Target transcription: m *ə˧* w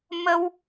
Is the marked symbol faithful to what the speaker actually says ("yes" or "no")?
yes